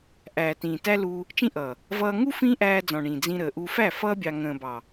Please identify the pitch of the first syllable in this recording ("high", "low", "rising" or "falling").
low